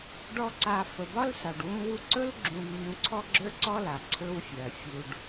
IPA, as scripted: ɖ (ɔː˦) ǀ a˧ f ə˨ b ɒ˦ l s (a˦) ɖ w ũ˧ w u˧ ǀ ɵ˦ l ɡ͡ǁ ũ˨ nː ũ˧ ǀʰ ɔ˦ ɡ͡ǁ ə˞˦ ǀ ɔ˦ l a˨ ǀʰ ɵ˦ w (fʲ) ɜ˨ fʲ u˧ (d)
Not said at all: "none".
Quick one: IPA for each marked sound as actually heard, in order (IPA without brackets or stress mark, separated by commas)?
ɔ˦, a˨, fʲ, ɖ